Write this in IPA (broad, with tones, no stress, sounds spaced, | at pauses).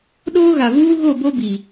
ɗ oː˦ ɣ a˨ v uː˦ ɣ o˦˨ b o˦ b i˨